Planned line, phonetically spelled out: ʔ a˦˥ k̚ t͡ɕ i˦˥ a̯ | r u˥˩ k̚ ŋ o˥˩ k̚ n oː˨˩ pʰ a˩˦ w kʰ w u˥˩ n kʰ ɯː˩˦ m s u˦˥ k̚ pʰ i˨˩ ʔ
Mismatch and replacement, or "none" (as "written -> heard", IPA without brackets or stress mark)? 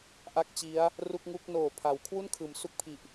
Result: o˥˩ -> u˥˩